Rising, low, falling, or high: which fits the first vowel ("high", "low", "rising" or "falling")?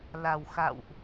low